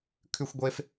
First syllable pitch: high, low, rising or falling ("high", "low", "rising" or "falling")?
high